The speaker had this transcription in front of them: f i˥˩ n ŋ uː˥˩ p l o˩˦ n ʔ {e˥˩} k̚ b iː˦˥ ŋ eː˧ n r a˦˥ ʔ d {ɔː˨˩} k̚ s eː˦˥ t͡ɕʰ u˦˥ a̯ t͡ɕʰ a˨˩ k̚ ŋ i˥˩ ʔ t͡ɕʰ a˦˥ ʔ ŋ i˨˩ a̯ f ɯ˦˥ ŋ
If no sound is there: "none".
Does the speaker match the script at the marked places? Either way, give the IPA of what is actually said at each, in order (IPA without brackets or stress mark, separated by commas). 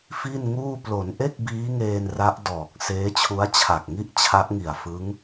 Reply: e˥˩, ɔː˨˩